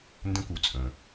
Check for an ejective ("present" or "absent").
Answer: present